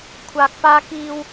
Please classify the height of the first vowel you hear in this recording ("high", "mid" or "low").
low